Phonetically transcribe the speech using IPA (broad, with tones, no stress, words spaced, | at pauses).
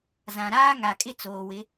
zã˨ɾaː˦ ŋa˨kʼɪ˦t͡soː˨wɪ˨˦